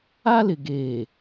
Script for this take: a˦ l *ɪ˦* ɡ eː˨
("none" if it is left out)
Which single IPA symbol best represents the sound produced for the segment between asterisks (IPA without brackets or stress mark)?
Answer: ɪ˨